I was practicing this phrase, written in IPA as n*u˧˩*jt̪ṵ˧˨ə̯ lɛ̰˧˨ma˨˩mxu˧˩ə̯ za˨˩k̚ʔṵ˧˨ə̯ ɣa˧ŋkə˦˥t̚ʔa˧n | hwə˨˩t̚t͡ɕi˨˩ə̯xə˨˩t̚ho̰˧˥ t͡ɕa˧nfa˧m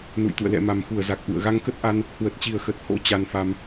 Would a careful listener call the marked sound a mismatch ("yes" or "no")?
yes